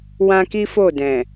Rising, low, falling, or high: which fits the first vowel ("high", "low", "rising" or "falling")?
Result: high